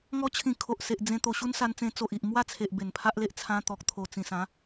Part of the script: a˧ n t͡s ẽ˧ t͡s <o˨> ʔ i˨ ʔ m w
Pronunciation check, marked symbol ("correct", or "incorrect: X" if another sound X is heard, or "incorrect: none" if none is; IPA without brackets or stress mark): correct